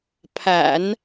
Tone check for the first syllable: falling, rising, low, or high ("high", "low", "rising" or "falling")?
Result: low